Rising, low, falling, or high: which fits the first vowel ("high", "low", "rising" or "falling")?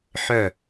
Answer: falling